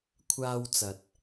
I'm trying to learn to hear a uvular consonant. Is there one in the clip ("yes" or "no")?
no